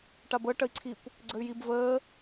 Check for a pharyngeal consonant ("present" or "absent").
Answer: absent